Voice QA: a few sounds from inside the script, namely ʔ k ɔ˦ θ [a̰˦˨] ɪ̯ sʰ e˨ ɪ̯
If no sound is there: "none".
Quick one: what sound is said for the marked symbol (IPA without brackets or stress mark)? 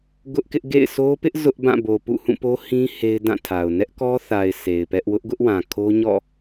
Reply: a˨